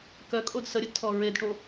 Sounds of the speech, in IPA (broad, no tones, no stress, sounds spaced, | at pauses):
k œ kʼ o d s ə ɾʲ ə d tʰ ɔ ɹ e d ʈ o